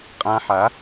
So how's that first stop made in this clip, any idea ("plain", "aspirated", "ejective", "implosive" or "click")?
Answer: ejective